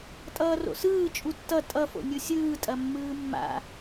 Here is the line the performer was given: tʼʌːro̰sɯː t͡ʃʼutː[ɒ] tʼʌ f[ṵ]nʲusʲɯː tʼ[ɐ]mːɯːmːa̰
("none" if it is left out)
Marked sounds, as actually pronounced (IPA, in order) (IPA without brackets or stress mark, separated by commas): ʌ, o̰, ɐ